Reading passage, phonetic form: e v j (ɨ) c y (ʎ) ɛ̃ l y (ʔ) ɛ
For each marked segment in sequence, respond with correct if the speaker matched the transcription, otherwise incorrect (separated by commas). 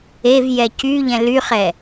incorrect, correct, incorrect